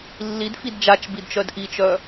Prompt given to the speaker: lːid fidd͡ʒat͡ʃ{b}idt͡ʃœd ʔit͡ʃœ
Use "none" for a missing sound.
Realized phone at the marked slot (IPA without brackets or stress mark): b